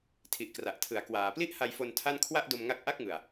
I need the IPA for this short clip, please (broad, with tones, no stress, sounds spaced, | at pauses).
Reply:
tʰ i˨˩ ʔ k r a˨˩ ʔ tʰ ɯ˨˩ a̯ k w aː˩˦ p l i˥˩ ʔ h a˧ j f o˧ n tʰ a˥˩ n kʰ w a˥˩ ʔ d o˧ m ŋ a˦˥ k̚ ʔ a˥˩ k̚ ŋ ɯ˨˩ a̯